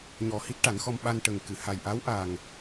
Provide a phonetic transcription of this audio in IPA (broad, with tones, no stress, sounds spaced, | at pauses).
ɲ ɔ˨˩ h i˦˥ t̚ ʈ a˨˩˦ n x ɔ˧ m ɓ a˧ n ʈ ə˨˩ ŋ k ɨ˨˩˨ h a˨˩ j ʔ a˧˥ w ʔ a˨˩ ŋ